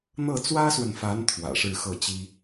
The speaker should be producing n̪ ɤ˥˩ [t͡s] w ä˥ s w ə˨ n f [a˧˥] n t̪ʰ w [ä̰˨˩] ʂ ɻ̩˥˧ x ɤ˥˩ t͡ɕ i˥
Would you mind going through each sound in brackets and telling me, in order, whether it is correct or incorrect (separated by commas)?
correct, correct, correct